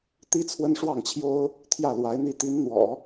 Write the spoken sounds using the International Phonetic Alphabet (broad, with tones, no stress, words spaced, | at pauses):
t̪i˥t͡sʰwə˥nʂwɑ˥˩ŋt͡ɕʰjo˥ʊ̯ | t̪ʰjä˥˩lwa˧˥ɪ̯n̪i˥˩ t̪i˧˥n n̪wɔ̰˨˩˦